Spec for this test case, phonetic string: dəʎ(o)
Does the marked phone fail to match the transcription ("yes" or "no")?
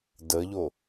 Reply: no